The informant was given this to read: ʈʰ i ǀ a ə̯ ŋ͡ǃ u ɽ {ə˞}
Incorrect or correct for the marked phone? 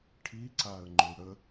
incorrect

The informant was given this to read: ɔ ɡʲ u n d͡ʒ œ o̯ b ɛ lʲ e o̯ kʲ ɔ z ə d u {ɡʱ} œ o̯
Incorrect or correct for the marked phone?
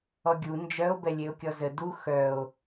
incorrect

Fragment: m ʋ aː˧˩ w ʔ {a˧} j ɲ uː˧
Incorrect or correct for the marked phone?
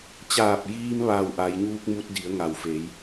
incorrect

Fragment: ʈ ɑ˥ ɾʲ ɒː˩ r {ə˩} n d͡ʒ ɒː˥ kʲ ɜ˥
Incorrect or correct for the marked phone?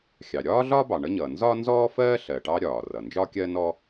incorrect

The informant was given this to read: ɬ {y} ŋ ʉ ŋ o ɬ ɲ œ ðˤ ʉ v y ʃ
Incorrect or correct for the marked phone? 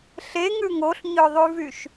incorrect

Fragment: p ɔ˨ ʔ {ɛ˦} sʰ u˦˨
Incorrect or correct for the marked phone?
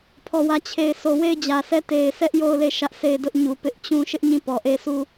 incorrect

